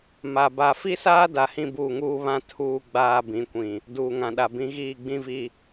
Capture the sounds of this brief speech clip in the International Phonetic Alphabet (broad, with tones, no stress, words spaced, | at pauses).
ma˨ ba˨fi˦saː˦da˨ hĩ˦buː˦˨ŋuː˦βã˦ tʰuː˦ɡ͡baː˦bĩ˨˦kʷĩ˨ | duː˨ŋã˨ɗa˨bĩ˨˦ ɣiː˦˨ɡ͡bĩ˦vi˦